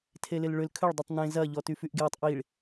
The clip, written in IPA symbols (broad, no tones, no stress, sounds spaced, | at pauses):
tʰ e l ɪ l ɭ ʏ l kʰ ʏ ɭ dˤ i tˤ n ẽ z ɐ ʎ ɔ t y f y ʔ ɡ j ɔ tˤ ʔ i ɭ